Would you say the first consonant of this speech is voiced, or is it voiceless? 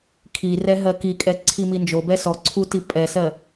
voiceless